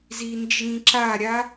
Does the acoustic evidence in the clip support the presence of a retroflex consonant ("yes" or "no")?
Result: no